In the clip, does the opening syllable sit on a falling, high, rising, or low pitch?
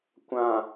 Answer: low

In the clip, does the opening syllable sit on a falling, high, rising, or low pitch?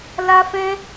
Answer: high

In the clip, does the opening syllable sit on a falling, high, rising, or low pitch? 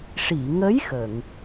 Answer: low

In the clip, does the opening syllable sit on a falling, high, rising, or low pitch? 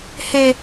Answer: high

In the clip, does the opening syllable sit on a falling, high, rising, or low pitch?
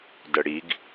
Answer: low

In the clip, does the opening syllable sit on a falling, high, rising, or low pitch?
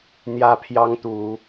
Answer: high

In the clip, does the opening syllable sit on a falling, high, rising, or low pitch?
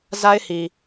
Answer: high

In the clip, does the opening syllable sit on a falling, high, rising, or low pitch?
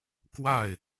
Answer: falling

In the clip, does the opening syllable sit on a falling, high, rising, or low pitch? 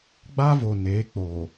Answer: high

